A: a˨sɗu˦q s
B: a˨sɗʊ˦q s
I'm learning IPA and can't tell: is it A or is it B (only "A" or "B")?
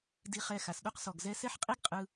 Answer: A